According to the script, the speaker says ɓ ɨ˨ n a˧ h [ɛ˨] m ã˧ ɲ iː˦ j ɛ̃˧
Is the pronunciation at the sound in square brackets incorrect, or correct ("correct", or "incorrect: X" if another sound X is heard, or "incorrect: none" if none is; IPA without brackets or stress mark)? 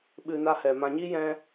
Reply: correct